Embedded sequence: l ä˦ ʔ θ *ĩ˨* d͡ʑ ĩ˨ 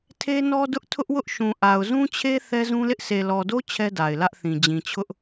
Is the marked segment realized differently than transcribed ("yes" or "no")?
no